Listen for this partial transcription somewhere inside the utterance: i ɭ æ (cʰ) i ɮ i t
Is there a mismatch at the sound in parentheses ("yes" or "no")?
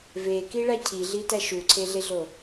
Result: no